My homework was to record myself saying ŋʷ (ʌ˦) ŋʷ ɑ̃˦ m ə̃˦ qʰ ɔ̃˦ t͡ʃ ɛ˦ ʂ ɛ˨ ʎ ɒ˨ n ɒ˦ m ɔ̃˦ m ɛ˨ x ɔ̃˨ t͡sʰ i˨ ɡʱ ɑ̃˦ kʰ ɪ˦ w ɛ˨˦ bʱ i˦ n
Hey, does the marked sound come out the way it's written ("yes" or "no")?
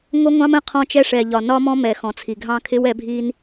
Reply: yes